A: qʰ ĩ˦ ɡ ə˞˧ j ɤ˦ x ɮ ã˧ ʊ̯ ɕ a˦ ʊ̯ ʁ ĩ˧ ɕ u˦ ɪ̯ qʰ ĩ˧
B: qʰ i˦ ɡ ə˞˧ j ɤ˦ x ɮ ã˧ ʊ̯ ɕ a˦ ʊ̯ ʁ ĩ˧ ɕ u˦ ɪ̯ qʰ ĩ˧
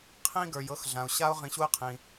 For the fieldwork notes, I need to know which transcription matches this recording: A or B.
A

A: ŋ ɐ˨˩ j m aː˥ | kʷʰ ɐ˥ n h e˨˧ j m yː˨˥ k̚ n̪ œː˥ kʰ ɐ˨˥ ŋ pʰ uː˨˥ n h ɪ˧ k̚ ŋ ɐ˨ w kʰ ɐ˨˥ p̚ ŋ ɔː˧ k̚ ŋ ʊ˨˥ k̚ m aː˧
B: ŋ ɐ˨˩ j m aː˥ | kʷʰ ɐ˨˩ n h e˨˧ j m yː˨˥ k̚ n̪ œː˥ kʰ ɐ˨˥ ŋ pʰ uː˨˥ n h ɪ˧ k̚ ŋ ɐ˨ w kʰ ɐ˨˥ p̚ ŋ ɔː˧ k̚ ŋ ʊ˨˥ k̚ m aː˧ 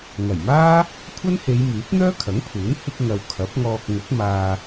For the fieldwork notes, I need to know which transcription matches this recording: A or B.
A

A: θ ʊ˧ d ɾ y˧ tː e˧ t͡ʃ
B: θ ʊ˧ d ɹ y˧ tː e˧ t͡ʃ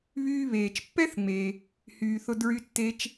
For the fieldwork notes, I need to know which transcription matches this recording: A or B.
B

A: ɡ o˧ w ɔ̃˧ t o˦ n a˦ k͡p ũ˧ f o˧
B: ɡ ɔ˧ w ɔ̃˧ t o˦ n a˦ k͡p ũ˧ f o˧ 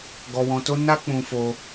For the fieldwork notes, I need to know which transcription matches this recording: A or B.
B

